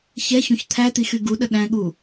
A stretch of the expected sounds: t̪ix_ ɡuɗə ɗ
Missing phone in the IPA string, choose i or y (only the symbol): y